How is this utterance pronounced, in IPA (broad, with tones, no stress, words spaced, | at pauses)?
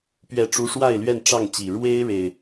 pɥɛ˥˨ʈ͡ʂu˦ ʂwa˥˨ɪ̯lɥɛ˥˨n ʈ͡ʂɑ˥˨ŋt͡ɕi˨˩ ɻwe˦ɪ̯ ɻe˨˩ɪ̯